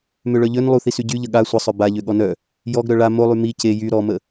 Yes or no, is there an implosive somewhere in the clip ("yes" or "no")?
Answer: yes